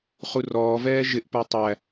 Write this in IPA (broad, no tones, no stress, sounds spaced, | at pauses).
χ u r ɔː v ɛː ʒ ɪ ʔ p ə˞ tˤ æ